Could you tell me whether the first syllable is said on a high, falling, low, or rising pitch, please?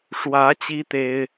rising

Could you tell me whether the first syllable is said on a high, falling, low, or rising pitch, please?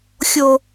high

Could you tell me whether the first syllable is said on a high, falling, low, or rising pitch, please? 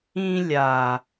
high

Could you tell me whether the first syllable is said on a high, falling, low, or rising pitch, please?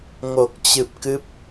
low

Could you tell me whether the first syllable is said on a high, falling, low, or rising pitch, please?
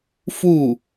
falling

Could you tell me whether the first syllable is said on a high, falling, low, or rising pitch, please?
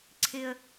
low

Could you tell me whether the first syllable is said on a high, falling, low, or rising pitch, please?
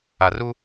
low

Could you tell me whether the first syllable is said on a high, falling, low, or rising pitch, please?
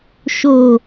low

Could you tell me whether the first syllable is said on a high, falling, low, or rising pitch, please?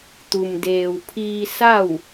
low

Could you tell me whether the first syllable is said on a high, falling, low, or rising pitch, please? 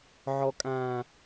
high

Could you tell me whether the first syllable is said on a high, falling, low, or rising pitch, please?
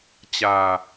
low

